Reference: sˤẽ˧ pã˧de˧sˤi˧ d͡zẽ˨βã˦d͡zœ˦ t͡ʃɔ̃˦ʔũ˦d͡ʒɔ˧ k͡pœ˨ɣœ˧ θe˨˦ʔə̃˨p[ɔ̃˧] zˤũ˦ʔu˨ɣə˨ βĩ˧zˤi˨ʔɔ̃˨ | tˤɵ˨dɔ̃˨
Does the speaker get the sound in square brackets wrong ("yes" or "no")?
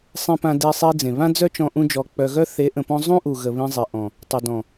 no